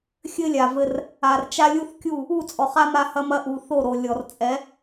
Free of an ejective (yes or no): no